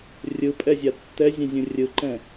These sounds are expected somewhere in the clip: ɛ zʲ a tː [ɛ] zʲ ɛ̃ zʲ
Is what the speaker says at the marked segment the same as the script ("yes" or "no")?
yes